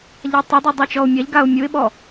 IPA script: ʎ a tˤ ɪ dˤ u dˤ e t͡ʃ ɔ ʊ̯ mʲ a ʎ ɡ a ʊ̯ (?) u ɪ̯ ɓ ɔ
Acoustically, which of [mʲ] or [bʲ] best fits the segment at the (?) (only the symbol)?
mʲ